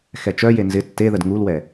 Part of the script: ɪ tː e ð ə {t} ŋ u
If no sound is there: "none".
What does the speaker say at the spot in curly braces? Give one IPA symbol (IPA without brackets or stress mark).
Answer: d